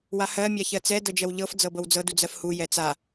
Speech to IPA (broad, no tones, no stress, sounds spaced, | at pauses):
w a h ɜ mʲ a ç ɜ t͡s ɛ d ɤ d͡ʒ ɜ w ʎ ɤ f d͡z ɤ b ɤ w d͡z ɤ d u d͡z ɜ f h u j ɛ t͡s a